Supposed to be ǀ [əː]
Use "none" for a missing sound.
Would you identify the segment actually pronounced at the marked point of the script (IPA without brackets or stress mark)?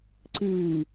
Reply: ɨː